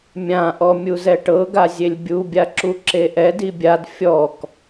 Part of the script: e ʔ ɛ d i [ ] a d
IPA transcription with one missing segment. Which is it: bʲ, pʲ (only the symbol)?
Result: bʲ